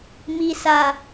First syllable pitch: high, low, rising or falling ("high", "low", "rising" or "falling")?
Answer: low